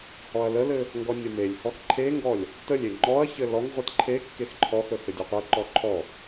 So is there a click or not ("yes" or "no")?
yes